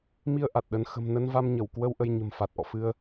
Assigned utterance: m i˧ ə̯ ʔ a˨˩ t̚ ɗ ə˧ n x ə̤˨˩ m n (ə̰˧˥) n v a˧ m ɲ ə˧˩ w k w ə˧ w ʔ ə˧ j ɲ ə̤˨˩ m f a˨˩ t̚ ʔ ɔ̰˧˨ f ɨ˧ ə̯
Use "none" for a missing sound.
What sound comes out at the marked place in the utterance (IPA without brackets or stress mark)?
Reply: ə˧